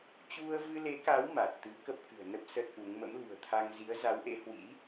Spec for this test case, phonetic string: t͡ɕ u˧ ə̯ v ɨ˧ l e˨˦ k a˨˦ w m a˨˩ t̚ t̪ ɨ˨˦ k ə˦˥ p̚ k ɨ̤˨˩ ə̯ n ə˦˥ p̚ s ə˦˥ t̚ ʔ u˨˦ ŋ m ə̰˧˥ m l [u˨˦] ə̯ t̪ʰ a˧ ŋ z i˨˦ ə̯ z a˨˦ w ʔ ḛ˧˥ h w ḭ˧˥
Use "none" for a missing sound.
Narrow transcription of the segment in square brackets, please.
ṳ˨˩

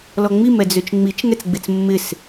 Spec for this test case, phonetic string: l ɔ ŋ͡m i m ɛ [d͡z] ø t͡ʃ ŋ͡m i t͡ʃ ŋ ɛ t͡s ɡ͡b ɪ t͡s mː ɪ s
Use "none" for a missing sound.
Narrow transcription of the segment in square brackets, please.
d͡z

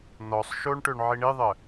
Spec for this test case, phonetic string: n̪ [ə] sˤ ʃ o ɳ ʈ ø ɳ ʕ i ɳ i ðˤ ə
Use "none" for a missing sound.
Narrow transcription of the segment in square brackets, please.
ɔ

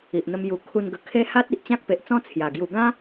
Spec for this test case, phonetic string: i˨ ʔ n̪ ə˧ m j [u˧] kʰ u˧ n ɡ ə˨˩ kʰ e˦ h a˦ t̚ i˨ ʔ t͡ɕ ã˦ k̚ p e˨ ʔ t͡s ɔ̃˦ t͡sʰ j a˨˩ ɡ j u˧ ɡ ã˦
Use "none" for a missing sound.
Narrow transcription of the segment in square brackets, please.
u˨˩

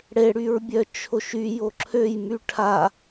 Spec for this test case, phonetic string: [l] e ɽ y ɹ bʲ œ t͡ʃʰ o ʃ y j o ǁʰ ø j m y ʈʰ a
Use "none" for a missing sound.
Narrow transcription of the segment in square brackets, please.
ɽ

